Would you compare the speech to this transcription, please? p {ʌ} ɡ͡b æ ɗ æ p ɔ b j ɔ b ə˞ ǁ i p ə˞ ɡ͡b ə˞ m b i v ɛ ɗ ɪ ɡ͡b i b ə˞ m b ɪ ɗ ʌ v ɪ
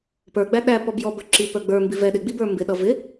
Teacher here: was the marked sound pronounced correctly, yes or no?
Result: no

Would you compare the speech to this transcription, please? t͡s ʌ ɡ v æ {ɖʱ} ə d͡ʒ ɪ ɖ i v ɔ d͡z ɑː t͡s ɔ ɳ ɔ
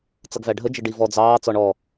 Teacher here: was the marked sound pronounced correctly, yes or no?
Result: yes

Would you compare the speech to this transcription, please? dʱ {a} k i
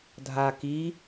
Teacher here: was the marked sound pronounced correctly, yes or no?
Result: yes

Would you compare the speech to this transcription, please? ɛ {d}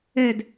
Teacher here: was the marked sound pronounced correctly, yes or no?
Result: yes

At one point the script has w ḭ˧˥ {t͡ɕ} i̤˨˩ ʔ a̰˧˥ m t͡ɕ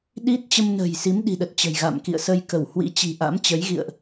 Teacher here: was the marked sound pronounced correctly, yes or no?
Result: yes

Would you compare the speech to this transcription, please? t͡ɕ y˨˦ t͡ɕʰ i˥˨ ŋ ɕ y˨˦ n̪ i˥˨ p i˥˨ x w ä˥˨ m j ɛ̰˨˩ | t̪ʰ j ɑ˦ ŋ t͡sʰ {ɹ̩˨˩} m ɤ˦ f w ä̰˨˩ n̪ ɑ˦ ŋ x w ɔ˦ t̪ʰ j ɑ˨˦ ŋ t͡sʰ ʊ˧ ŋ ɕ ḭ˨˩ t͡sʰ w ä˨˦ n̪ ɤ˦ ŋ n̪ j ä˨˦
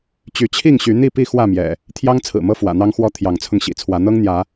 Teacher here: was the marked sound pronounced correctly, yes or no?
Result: yes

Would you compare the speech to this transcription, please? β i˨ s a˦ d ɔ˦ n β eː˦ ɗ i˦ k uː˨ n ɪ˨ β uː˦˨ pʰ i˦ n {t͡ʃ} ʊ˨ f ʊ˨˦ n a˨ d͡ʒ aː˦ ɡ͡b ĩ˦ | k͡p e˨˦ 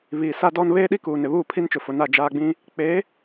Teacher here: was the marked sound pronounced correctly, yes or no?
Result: yes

